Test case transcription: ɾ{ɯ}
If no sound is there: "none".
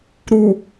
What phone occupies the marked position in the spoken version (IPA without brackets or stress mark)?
u